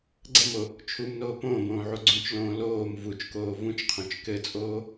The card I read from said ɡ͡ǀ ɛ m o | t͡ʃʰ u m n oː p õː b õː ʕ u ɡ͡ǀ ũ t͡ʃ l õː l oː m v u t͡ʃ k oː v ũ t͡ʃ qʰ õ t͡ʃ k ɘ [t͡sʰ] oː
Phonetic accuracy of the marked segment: incorrect: t͡sʼ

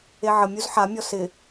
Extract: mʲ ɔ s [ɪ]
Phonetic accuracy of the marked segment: correct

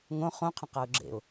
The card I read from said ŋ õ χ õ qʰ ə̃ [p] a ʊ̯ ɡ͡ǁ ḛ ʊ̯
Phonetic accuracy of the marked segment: incorrect: q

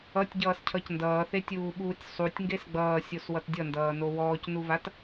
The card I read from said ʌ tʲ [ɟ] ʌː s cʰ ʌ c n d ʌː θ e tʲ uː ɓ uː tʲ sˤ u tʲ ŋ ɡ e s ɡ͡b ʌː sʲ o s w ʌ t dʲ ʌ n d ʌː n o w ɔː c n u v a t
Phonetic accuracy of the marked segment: correct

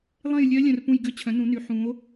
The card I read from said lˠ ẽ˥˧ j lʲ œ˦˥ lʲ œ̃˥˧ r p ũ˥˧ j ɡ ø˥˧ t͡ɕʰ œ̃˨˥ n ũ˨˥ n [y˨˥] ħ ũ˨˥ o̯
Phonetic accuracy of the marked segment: correct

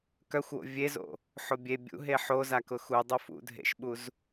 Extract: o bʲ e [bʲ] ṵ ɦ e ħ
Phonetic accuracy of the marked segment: correct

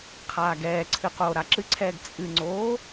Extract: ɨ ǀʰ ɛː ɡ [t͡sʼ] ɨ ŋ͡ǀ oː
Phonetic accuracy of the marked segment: correct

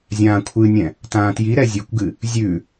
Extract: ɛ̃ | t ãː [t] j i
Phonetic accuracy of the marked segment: correct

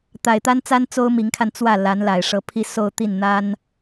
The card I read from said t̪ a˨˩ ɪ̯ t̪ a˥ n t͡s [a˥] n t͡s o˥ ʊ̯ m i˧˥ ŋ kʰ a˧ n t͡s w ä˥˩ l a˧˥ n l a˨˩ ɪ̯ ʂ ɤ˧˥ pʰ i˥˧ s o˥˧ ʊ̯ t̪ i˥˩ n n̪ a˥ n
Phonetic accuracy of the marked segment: correct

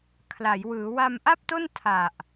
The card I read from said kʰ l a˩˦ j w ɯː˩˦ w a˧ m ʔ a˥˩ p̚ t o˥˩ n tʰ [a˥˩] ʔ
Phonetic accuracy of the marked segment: incorrect: a˨˩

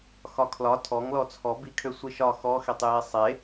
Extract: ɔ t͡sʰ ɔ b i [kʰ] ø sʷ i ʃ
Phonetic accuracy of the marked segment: correct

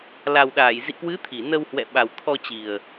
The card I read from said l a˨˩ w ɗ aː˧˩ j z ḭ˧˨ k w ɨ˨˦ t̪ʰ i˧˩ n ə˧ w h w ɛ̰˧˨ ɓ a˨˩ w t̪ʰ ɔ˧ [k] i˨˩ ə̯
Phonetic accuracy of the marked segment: incorrect: t͡ɕ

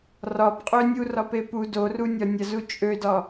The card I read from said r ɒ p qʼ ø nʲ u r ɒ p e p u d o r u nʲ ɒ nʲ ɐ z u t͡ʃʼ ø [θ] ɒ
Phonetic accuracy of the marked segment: incorrect: d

